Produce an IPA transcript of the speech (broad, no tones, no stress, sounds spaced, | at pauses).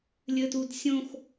lʲ ɘ t u d sʲ õ x